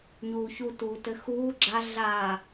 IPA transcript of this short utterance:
ɲ uː ç u t uː t ɘ x uː ɡ͡ǁ a ɮ aː

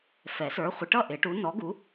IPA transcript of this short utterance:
f ɛ˨˩˦ s ə˞˨˦ χʷ ɪ˨˦ ʈ ʌ˥˨ ʔ ɪ˨˩˦ ʈ u˨˦ n ɔ˨˦ ɡ u˨˦

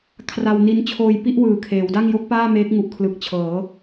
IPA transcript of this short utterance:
kʰ r a˧ w n i˦˥ n t͡ɕʰ oː˧ j p i˥˩ ʔ w ɯː˨˩ kʰ eː˩˦ w d a˥˩ ŋ j o˦˥ k̚ p aː˥˩ m eː˦˥ k̚ ŋ u˨˩ ʔ kʰ l ɯ˨˩ k̚ t͡ɕʰ ɤː˩˦

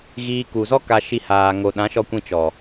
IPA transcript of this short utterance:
ɣ iː˧ k u˨ z ɔ˦ k a˧ ʃ i˧ h aː˨ ŋ o˨ ɗ ã˨˦ ʃ ɔ˧ kʷ ĩ˧ t͡ʃ ɔ˨

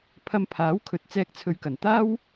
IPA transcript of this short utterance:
pʰ ɐ˧ m pʰ aː˨˥ w kʰ ɵ˨ t̚ t͡s ɛː˧ k̚ t͡sʰ ɵ˨ ɥ k ɐ˨˩ n t̪ aː˥ w

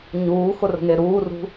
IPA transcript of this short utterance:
ɲ uː x ʊ r ə̤ ŋ e ɾ uː r ṳ

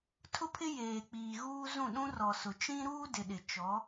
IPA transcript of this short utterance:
tʰ ʊ˦ pʰ ɪ˦ j eː˨ k͡p iː˨ ɣ uː˦ z ũ˦˨ ɗ ũ˦ r ɔ˨ s ʊ˨ t͡ʃ ĩ˦ ɾ uː˦ d ɪ˨ ɗ ɪ˨ t͡ʃ ɔ˨˦

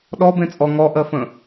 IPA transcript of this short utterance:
ɗ ɔ b ẽ t͡sʼ ɔ ŋ ɔ ʔ ɜ f ə̃

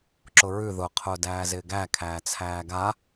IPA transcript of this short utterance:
ǁ ʊ ɹ ʉ ð ʊ qʰ ʊː d æː z ɪː ɡ æ kʰ æː t͡sʰ æː ɡ a

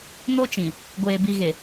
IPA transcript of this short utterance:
n o˦ t͡ʃ ĩ˨ | ɡʷ eː˨ b i˨ ɣ e˨

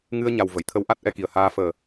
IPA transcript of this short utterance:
ŋ ɨ˧ ə̯ ɲ a˨˩ w v ə˨˩˨ j t̪ʰ ə˧˥ w ʔ a˦˥ t̚ ʔ ɛ˧ k i˨˩ ə̯ h aː˧ f əː˨˩

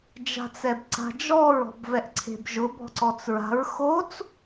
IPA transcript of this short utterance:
d͡ʒ a̤ t͡s ɛ b ǀ a̤ d͡ʒ ɔ ɹ ɔ̤ b v ɛ ʔ ǀʰ e̤ b ʒ ʊ b ɔ̤ ǀ ɔ t͡s ɹ a̤ ɹ x o t͡s

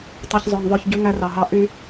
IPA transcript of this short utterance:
tˤ i˨ ç zˤ œ˨ ŋ ðˤ œ˦˨ ç ɟ ʉ˦ ŋ æ˦ r ɑ˨ ɦ ɑ˦ ʔ y˦

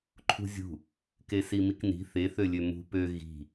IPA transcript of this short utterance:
ǃʰ ṳ zʲ ṳ | k e s i m i k n i̤ θ e θ ø lʲ ø m ṳ p ø ɣ i̤

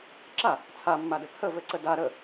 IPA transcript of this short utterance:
ǁ a | t͡sʰ a mː a d ɘ p h ə v ɘ ǀ ə d a ɾ ə

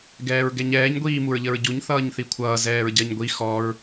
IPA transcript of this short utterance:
ɡ ɛː ɹ ɡ ɛ ɲ ɛː ɲ ɡʷ iː m u ɹ ʎ ə ɹ ɟ u ɲ θ ʌː ɲ θ i kʷʰ ʌː z ɛː ɹ ɟ ɜ ɲ ɡʷ i x ɔ ɹ

